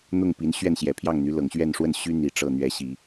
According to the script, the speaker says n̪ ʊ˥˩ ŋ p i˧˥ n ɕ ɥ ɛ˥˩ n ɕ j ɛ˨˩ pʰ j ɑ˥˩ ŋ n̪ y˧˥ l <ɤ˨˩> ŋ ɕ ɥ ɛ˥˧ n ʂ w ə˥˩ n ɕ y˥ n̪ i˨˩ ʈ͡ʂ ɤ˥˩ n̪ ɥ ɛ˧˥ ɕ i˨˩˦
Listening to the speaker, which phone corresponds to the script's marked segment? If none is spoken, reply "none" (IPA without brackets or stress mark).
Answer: ɤ˨˩